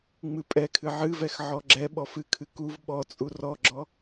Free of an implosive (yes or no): no